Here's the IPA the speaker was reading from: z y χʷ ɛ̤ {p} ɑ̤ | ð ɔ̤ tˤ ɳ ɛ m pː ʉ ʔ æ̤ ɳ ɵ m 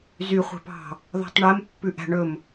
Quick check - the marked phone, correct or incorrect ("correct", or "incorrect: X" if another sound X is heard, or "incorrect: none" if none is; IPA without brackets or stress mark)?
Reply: correct